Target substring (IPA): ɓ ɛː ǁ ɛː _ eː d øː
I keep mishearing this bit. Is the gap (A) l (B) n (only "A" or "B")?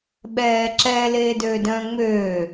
A